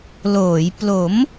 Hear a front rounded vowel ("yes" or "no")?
no